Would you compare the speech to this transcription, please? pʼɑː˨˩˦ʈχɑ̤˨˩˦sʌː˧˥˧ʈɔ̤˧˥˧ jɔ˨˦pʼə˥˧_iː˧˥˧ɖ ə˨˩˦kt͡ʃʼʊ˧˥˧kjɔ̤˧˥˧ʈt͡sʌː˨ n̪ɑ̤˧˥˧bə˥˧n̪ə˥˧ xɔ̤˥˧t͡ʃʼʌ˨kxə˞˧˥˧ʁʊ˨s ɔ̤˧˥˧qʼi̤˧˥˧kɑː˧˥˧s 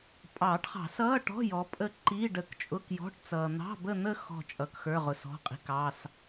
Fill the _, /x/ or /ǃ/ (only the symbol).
ǃ